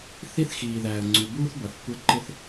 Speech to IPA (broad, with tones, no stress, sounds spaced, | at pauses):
θ i˦ θ x iː˨ ð æː˨ ə̯ ŋ͡ǀ u˨ b uː˦ θ b ʌ˨ θ kʷ ɪ˦ ə̯ ǃ ɪ˦ θ